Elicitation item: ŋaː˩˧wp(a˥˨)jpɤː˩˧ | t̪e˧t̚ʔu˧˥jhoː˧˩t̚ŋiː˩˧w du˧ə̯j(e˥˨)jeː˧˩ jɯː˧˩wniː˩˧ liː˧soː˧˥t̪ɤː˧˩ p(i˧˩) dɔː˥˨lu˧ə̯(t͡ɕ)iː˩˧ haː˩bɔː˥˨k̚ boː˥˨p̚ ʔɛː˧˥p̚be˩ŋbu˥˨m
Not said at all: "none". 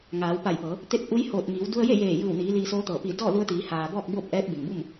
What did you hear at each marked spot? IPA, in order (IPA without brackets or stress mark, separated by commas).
a˧˩, e˥˨, i˧˩, t̪